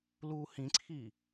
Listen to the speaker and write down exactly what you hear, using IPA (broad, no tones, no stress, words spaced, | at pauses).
luːhĩǀʰiː